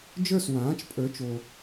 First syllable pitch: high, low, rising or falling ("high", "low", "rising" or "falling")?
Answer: falling